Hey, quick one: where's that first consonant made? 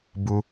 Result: lips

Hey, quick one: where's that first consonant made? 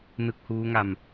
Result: tongue tip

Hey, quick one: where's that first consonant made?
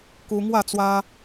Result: velum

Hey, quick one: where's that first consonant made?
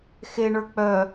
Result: velum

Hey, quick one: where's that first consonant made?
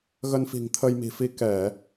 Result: velum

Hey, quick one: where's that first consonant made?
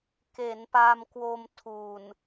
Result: velum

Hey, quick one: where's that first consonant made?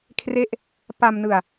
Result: velum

